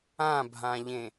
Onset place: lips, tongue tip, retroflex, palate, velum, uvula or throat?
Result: lips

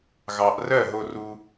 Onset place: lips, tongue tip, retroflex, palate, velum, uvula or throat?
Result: velum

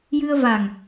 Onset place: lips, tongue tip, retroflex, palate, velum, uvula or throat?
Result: palate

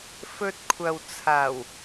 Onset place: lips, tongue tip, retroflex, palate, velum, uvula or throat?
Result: lips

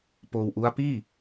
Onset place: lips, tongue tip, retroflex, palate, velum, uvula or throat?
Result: lips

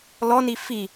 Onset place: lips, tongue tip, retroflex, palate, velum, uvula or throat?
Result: tongue tip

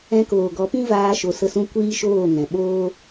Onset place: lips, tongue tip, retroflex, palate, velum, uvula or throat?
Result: velum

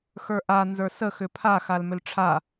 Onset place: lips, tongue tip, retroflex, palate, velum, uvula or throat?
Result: velum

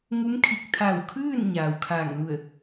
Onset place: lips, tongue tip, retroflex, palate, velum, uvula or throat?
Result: velum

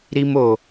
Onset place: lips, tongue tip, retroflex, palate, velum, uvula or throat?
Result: tongue tip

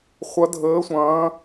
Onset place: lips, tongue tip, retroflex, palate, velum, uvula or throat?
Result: uvula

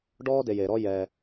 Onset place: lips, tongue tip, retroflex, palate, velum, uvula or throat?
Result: retroflex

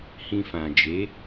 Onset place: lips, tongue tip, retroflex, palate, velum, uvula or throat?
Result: throat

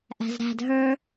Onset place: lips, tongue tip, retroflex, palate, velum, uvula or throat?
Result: throat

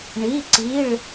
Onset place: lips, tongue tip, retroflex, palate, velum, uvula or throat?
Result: retroflex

